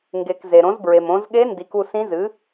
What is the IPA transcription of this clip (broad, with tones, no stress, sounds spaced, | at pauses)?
ŋ ɡ e˩ k z e˩ ɾ õ˩˥ z b ɹ e˩ m õ˩˧ z ɠ e˧˥ n d i˩˧ k u˦˨ s ĩ˧˥ z ɨ˩˥